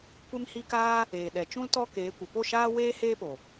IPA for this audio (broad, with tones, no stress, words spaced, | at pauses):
kʷe˧mhi˧ kaː˦ | eː˨ɗɛ˨t͡ʃũ˦l tɔ˦keː˨˦kʷə˨ po˦˨ʃaː˦ weː˦ heː˦po˨